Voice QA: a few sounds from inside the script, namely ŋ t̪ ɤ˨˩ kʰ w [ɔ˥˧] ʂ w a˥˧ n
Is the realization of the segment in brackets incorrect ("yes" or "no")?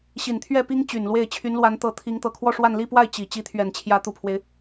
no